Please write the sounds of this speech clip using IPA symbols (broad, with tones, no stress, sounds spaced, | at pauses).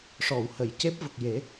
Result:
ʂ ɔ˨˩˨ w h ə˨˩˨ j c e˦˥ p̚ v ə˨˩ k̚ j e˨˩˦